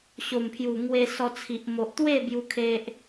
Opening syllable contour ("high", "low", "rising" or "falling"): low